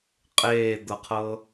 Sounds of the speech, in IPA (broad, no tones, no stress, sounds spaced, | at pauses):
qʼ eː d̪ ɤ qʰ ɤ